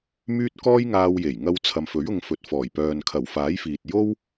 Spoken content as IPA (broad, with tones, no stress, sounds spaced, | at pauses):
m yː˥ t̚ k ɔː˥ j ŋ aː˧ w j e˨˩ j ŋ ɐ˧ w t͡sʰ ɐ˨ m f ɵ˨˥ ɥ ʊ˧ ŋ f ɵ˨ t̚ f ɔː˨˩ j p œː˨ n kʰ ɐ˨˩ w f aː˨˥ j f iː˨ t̚ j o˥ w